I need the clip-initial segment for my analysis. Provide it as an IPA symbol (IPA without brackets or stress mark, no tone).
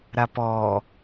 ɾ